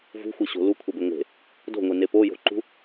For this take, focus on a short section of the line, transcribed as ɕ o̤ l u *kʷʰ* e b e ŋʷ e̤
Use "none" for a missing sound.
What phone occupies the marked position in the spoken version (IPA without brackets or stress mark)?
kʷʰ